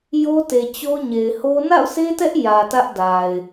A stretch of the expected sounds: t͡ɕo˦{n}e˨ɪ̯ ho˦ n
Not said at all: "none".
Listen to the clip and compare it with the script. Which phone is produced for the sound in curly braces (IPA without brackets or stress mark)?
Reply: ɲ